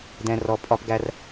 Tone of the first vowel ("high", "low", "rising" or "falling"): low